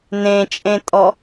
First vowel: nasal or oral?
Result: nasal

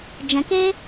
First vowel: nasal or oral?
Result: nasal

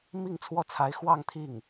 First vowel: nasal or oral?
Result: oral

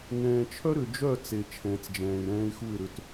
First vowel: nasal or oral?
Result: nasal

